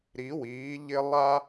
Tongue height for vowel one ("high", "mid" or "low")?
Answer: high